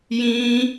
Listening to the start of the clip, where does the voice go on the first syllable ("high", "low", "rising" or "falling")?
high